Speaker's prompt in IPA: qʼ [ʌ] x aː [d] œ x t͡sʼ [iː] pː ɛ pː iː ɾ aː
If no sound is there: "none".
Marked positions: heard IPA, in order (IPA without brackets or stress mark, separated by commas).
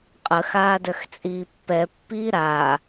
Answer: ə, d, iː